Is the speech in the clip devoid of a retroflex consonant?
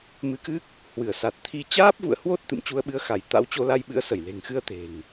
yes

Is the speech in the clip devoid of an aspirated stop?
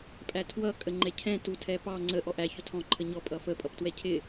no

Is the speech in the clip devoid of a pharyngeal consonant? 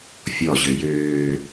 yes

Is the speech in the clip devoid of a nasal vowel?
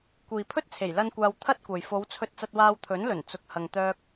yes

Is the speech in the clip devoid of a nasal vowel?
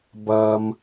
yes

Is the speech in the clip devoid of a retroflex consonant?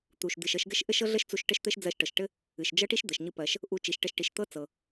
no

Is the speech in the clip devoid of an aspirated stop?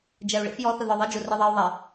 yes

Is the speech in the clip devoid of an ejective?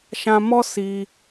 yes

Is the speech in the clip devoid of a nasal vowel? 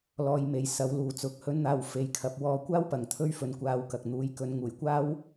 yes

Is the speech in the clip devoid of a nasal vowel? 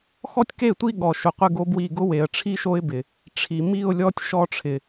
yes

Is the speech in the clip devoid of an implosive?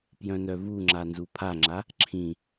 yes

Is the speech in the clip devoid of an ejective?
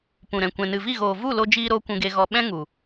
yes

